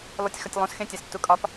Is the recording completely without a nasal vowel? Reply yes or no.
no